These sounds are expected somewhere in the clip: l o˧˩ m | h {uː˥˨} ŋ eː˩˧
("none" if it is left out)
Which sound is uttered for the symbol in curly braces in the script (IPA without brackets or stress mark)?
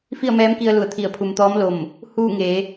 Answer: uː˥˨